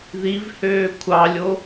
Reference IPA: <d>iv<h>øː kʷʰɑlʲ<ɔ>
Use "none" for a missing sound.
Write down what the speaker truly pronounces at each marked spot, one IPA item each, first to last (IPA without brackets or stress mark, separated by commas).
ð, h, o